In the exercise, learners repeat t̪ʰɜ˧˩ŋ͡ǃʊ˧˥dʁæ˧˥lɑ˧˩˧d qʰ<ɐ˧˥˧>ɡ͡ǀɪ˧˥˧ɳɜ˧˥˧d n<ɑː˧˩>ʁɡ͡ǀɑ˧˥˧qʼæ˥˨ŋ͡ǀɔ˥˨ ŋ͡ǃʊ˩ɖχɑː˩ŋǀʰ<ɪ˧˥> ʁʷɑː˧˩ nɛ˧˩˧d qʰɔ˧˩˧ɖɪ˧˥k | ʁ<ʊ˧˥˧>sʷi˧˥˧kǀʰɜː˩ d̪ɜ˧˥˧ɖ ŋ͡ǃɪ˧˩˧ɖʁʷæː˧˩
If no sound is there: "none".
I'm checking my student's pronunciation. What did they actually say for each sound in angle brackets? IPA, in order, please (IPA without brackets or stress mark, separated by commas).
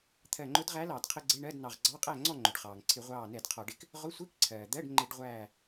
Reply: ə˧˥˧, ɑ˧˩, ɪ˧˩˧, ʊ˧˥˧